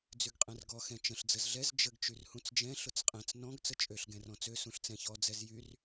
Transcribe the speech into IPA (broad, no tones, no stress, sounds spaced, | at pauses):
d͡z y ɡ qʼ ɛ̃ r ɡ ɔ x ɛ̃ t͡ʃ ə̃ ɬ d͡z ə z ɮ ɛ z d͡ʒ ə ɡ t͡ʃ y r h ũ t͡s d͡ʒ ɛ̃ ɬ ʊ t͡s qʼ ɛ̃ t͡s n ɔ̃ ɡ t͡s ə t͡ʃʼ ø ɬ ɡ ɛ̃ r ɔ̃ t͡s ø s ũ ɬ t͡s ɛ̃ ç ɔ d͡z ɛ z j y r